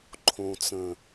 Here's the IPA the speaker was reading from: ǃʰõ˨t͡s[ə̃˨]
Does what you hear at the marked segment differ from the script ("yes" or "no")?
no